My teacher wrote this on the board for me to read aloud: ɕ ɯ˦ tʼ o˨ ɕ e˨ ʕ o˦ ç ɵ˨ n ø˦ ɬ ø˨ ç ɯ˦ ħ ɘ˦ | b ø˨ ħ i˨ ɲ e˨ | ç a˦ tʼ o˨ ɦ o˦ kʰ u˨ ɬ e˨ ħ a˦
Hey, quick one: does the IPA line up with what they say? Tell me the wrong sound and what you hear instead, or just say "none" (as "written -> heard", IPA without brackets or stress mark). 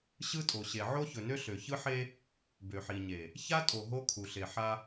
ɘ˦ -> e˦